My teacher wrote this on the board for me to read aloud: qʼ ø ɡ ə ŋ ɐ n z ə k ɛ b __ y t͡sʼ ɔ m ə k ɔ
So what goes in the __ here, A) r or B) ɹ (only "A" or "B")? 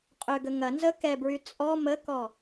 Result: B